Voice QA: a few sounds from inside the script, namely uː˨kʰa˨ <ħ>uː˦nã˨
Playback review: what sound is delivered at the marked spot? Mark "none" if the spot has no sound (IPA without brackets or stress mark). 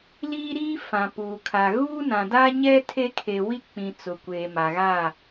ɣ